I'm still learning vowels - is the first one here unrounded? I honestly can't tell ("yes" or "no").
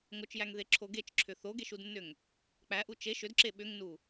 no